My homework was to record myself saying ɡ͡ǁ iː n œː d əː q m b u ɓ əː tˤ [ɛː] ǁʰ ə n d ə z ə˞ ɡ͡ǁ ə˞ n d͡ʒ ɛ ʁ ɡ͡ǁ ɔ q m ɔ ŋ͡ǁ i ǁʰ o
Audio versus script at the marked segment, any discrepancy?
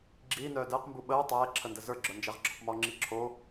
no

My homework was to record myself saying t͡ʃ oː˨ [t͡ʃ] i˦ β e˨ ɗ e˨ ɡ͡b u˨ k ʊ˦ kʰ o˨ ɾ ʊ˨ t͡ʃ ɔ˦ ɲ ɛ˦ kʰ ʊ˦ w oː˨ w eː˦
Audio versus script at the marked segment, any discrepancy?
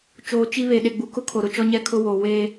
no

